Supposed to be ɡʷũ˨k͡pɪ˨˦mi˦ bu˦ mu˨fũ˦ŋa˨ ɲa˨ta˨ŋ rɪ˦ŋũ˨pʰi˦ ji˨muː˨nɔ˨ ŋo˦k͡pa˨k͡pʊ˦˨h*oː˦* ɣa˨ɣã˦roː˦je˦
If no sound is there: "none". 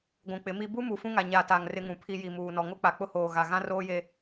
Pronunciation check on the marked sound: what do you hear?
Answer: oː˨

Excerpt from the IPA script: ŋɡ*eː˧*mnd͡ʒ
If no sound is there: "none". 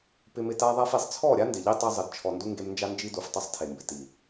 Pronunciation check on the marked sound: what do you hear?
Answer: e˧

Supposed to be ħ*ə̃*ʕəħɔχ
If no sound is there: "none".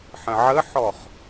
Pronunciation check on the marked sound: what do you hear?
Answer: ə̃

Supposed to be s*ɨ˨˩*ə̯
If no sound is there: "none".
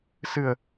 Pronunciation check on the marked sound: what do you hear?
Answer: ɨ˨˩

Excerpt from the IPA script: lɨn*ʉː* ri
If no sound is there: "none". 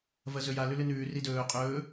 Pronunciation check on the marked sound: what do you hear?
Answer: ʉː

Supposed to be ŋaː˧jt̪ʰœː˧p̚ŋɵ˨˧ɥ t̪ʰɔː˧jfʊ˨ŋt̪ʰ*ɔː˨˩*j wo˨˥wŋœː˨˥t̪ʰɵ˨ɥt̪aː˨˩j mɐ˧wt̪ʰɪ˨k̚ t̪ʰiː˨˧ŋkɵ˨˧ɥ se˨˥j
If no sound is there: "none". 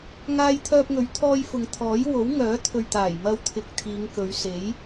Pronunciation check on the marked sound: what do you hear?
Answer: ɔː˨˥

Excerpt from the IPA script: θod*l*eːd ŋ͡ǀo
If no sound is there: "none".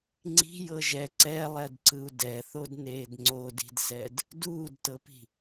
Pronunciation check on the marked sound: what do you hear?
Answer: n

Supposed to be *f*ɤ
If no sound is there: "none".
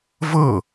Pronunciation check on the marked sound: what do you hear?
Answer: v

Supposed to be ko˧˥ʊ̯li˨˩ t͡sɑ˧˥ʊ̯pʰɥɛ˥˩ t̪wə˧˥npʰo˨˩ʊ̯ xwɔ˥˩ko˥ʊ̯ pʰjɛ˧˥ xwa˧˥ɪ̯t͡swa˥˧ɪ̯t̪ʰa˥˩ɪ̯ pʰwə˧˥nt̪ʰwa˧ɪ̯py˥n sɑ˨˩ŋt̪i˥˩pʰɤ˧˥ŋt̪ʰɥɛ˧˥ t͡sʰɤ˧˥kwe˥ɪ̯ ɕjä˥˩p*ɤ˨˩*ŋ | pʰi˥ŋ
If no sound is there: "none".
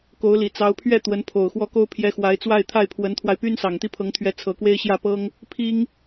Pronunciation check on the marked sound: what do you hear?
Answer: ɤ˥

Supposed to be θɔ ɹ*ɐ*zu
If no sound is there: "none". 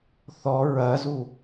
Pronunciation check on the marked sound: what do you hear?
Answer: ɐ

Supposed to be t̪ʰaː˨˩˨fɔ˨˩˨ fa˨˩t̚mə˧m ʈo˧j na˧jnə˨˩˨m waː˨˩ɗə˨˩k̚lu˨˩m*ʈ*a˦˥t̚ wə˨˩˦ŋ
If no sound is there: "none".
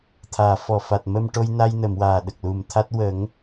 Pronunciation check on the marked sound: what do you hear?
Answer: t̪ʰ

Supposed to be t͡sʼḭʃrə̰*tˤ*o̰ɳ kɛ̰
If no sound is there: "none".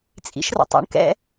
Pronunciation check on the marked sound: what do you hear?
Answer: tˤ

